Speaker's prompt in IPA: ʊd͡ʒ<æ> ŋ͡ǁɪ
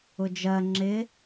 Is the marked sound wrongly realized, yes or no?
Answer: yes